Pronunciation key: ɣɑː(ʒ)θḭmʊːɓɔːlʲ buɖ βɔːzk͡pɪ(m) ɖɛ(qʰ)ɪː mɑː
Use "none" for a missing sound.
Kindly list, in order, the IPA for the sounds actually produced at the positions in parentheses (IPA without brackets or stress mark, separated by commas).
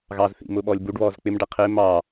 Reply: z, m, qʰ